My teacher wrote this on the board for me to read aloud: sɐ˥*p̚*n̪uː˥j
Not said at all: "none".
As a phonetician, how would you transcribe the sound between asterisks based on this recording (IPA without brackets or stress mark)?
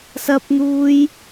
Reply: p̚